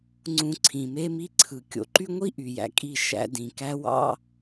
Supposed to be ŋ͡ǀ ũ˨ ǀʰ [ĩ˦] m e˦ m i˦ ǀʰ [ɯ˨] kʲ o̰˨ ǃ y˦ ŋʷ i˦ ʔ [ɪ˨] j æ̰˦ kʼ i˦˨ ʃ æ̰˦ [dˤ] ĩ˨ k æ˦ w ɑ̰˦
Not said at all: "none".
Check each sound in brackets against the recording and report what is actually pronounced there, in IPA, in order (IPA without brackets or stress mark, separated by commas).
ĩ˨, ɯ˨, y˨, d